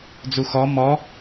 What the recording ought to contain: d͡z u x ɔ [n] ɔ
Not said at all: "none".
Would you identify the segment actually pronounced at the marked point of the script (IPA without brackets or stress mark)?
m